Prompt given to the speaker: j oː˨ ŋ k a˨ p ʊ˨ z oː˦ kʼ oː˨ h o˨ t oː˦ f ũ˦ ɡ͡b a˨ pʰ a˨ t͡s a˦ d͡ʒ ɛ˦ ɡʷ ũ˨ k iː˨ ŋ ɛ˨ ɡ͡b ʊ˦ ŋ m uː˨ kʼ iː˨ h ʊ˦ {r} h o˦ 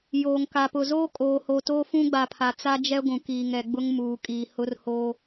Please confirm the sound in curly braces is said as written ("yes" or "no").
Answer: yes